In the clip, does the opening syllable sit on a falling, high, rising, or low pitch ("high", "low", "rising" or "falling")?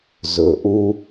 low